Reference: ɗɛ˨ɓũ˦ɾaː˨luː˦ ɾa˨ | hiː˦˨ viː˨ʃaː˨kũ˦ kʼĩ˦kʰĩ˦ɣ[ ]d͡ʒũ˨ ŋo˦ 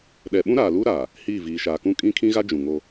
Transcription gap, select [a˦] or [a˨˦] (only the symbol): a˦